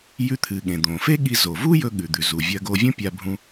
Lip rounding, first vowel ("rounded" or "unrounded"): rounded